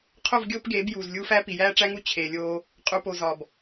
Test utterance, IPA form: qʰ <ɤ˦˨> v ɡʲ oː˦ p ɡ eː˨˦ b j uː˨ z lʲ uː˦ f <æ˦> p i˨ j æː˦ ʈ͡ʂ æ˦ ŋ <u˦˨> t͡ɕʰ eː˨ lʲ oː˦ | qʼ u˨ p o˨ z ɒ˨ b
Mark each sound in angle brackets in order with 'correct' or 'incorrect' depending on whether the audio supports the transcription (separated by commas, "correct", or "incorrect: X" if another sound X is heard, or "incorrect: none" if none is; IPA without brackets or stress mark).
incorrect: o˦˨, correct, correct